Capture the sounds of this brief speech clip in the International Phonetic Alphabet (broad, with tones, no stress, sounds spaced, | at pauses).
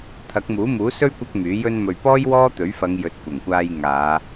t̪ʰ ɐ˨˥ k̚ m uː˨˥ m uː˨˥ s ɵ˥ ɥ kʷ ɐ˥ k̚ m yː˨˥ j ɵ˧ n m ɵ˨ ɥ p ɔː˥ j w ɔː˥ t̪ ɵ˨˥ ɥ f ɐ˨˧ ŋ j ɵ˧ t̚ kʷ ɐ˨˩ ŋ kʷ aː˧ j ŋ aː˨˧